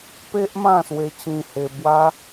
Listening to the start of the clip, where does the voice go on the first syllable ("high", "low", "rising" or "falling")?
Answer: high